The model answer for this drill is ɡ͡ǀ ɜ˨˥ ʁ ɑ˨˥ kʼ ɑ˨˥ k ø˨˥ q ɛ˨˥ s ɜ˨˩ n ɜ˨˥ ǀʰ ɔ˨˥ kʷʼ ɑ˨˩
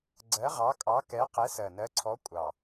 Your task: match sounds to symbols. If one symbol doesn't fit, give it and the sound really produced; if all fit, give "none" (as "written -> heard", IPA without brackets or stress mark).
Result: ø˨˥ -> ɛ˨˥